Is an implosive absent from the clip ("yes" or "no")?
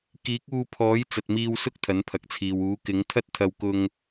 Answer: yes